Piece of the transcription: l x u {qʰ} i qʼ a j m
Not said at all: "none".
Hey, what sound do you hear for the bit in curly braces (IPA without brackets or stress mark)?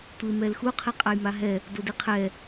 qʰ